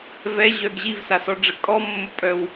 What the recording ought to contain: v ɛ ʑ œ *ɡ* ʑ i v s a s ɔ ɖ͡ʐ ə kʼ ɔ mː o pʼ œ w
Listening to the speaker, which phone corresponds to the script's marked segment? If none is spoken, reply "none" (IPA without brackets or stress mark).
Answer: ɡ